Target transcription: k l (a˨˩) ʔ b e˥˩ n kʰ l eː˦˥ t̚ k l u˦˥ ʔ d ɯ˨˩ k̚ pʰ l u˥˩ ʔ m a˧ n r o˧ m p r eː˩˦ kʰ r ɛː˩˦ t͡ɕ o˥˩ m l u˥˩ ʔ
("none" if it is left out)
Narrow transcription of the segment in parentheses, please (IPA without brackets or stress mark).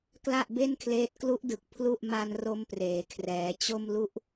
a˥˩